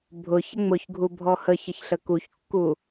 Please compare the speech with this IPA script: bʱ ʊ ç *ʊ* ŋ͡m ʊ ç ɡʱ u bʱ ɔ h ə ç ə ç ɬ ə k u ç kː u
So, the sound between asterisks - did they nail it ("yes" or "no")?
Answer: no